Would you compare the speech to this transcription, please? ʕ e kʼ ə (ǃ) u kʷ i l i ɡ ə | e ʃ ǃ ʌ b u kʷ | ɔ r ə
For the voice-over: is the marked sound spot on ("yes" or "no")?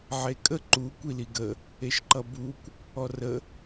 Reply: yes